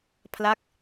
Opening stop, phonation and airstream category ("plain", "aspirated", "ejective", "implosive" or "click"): aspirated